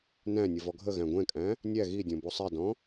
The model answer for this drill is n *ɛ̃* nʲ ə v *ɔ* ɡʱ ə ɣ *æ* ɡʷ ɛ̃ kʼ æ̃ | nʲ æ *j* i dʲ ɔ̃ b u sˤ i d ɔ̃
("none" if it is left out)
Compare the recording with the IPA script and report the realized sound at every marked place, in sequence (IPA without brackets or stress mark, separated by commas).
æ̃, ɔ, æ̃, ɣ